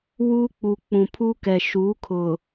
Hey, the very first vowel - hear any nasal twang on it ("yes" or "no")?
no